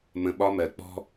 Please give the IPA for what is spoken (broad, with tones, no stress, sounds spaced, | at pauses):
m ə̃˧ ɓ ɒ˧ m ɜ˨ k͡p ɔ̤˦